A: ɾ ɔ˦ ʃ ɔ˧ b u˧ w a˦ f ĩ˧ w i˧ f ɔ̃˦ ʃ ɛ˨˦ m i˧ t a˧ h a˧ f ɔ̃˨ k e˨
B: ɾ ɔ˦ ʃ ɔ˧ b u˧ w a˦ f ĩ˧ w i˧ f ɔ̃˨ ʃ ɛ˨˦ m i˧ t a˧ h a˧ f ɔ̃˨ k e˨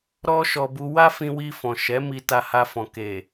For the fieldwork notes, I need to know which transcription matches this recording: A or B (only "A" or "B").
B